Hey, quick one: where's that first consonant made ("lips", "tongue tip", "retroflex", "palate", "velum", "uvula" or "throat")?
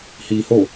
throat